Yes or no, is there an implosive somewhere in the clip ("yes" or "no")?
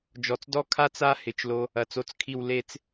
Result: no